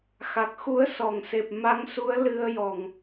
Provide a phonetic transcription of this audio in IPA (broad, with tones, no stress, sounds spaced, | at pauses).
x a˨˩ k̚ x u˧˥ ə̯ s ɔ˨˩˨ ŋ s e˨˩ p̚ m a˧˥ ŋ s u˧˥ ə̯ l ɨ˧ ə̯ j ɔ˨˩ ŋ